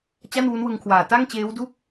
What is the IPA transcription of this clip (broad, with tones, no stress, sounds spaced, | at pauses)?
t͡ɕ a˥˩ n w u˦˥ n w ɯ˧ ŋ kʰ w aː˨˩ t a˥˩ ŋ t͡ɕ eː˦˥ w d u˥˩ k̚